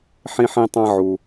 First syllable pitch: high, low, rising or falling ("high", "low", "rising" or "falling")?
high